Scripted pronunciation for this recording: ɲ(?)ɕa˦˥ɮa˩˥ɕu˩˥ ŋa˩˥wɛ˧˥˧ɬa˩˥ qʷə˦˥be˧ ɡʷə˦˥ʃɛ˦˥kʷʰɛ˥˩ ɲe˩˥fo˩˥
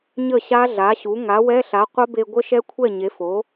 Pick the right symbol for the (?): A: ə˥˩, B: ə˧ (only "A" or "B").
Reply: A